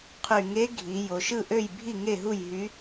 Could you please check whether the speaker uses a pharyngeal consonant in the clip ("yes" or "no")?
no